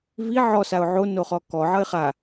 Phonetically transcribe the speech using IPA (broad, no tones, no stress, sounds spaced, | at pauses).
v i ʕ ɔ s a ʊ̯ ʕ o n o χ ɔ k ɔ ʕ ʌ ɪ̯ χ a